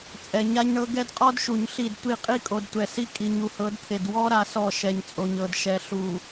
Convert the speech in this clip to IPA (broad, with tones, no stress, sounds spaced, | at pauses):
t͡sʼ ɛ˨ ɲ a˦ ɲ ɳ ɤ˦ ɡ ɛ˦ d qʼ ɔ˦ d ʃ u˨ ɲ ɬ i˦˨ d tʷ i˦˨ qʼ i˦ kʼ o˨ d tʷ ɛ˨ s i˦ kʼ i˨ ɲ u˨ h ɤ˨˦ d t̪ʰ e˨ d w ɔ˦ ɾ a˦ s ɔ˦˨ ʃ ɛ˨ ɲ t͡sʼ o˨ ɲ ɤ˨ d ʃ ɛ˨ ɬ u˨